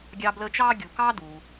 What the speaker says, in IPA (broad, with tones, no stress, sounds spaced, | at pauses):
ɡʲ ɑ˦ b l əː˦ t͡ʃ ɑː˥ ɡʲ u˨ k ɑ˥ d u˨